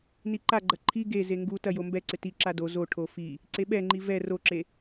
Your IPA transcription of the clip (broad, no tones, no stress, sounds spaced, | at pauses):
n i ǃ a ɡ͡ǃ ɐ ǃʰ i ɡ e z e ŋ ɡ u t ɐ j o m b ɛ ǀ ɪ t i ǁ a d o z o ʈʰ o f i | ǀ e ɓ ɛ ŋ͡ǃ i v ɛ r o ǁ e